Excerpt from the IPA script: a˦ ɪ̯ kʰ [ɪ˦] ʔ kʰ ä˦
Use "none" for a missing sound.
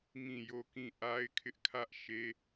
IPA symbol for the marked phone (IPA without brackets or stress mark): ɪ˦